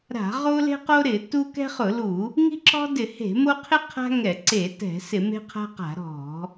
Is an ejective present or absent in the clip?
absent